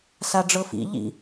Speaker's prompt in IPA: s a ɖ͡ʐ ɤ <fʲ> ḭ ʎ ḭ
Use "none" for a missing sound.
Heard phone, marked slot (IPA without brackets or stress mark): f